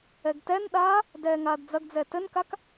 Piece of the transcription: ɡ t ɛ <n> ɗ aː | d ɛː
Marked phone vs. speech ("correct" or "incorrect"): correct